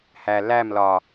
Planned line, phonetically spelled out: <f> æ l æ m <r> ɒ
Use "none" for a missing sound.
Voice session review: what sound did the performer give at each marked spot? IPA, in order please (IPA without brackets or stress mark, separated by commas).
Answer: h, l